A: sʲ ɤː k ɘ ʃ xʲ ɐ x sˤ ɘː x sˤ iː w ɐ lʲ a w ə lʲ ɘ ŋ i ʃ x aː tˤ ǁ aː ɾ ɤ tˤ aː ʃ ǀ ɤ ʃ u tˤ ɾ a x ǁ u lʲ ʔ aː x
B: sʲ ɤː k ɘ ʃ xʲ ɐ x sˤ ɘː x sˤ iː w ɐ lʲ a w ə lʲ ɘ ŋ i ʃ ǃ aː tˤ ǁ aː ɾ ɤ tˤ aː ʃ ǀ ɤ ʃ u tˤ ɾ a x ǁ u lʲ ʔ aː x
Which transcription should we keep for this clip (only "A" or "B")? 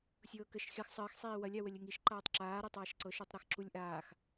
B